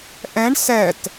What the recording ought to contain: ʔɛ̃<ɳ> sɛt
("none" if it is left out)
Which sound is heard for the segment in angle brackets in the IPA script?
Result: ɳ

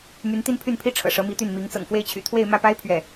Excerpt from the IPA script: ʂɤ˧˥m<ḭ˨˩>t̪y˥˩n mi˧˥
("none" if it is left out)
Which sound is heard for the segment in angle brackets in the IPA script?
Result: i˧˥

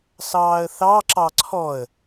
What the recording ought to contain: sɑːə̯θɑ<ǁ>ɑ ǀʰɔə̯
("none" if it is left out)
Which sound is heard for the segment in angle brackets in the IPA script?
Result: ǁ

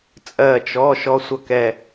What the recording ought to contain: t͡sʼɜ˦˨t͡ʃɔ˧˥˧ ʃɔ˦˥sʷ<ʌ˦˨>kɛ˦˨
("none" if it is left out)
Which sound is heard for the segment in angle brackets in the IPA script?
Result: ʌ˦˨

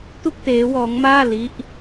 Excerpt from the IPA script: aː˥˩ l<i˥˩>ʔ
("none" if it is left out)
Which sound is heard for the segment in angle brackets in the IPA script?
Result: i˦˥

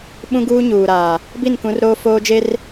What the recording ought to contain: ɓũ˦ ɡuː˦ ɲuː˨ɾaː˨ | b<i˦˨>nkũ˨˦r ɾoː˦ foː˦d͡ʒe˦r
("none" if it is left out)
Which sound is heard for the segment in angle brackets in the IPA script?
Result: i˦˨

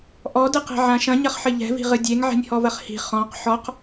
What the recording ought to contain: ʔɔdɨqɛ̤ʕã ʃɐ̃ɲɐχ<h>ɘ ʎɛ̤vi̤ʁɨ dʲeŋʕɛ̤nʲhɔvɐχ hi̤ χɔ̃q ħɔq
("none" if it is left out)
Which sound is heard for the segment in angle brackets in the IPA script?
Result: ħ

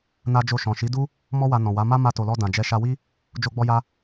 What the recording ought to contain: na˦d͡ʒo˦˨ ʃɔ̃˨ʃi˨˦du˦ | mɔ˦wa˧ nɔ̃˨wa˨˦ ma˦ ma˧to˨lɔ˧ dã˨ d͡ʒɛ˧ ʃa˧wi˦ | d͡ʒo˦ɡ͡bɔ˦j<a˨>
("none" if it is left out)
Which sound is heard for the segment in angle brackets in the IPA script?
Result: a˦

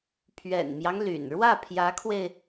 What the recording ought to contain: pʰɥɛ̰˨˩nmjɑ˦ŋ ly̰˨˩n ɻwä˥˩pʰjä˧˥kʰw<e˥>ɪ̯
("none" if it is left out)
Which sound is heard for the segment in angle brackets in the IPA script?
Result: e˧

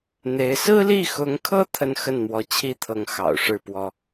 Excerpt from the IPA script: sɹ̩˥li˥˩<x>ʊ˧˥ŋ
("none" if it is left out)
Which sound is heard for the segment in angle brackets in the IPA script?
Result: x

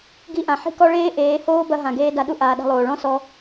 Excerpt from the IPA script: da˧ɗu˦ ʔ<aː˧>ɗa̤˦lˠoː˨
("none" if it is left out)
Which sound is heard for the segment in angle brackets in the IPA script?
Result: aː˧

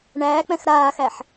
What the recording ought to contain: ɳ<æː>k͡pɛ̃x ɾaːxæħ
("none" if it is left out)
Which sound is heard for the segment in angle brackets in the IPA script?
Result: æː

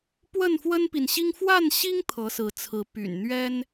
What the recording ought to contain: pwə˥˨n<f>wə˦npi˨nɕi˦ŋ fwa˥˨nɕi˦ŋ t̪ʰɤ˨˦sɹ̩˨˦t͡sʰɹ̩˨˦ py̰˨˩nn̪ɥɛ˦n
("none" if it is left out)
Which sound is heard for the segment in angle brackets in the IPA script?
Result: f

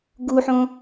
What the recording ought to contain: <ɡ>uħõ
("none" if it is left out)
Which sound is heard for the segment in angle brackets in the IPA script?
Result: ɡ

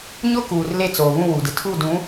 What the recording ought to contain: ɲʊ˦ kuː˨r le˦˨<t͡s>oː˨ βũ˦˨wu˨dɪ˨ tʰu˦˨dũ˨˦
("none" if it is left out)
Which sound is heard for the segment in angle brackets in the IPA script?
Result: t͡s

